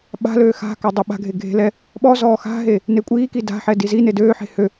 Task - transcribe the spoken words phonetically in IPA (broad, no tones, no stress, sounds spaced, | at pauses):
ɓ a̤ l øː x a̤ k a dˤ ø ɓ a̤ ɡʱ e ɡʱ e̤ l ɛ | ɓ ɔ z ɔː x a̤ ɦ e | n e kʷʼ iː k i d a̤ ħ ɛ d i z i n e d øː ħ e̤ h ø